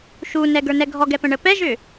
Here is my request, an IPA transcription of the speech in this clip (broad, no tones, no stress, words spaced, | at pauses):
ʃunɛɡə˞nɛ ɡʱɔɡɛpə̃ɳə pɛʒʏ